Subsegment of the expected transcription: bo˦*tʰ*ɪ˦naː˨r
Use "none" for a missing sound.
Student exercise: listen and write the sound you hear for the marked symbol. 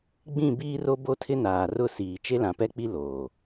tʰ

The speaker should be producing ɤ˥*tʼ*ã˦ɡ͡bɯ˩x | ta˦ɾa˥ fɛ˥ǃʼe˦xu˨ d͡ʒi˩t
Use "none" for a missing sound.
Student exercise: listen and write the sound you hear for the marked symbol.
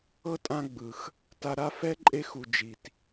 tʼ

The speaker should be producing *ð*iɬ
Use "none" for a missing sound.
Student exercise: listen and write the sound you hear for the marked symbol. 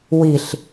w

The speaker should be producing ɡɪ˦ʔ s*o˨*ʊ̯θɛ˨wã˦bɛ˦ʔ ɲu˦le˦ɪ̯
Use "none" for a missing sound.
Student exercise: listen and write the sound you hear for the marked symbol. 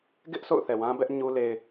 o̰˦˨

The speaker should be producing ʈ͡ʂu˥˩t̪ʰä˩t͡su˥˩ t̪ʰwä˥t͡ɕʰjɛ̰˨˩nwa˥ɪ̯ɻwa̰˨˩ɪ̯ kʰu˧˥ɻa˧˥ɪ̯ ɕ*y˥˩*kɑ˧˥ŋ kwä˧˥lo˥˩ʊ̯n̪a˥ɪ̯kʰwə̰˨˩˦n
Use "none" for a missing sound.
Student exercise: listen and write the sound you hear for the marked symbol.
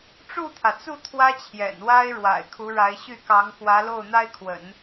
y˥˩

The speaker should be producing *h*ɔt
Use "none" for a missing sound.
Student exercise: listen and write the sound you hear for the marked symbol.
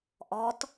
ʔ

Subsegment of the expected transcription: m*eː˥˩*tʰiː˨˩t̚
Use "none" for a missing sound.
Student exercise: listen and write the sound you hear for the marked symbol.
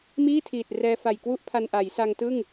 iː˥˩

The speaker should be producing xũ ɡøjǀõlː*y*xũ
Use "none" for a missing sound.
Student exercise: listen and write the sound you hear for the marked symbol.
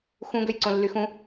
y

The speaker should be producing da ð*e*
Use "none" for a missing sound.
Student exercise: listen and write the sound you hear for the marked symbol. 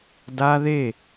e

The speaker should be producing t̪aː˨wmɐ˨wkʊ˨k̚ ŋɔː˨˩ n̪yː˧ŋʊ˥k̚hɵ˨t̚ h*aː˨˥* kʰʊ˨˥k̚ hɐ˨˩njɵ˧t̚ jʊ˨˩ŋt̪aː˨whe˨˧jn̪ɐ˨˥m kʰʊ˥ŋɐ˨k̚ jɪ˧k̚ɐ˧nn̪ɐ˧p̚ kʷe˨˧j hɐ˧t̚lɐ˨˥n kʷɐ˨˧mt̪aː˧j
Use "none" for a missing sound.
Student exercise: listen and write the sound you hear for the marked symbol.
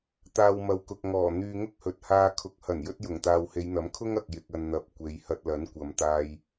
aː˧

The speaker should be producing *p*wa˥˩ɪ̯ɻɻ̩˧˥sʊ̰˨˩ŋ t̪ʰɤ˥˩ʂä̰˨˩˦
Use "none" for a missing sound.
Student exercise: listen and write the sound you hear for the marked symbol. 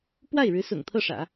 p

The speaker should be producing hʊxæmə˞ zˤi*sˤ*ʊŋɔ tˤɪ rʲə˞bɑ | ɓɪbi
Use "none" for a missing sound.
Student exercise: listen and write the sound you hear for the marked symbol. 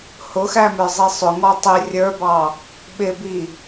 sˤ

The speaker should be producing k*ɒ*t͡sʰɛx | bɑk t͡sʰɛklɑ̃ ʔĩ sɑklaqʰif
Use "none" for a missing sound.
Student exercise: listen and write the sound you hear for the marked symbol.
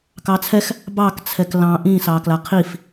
ɑ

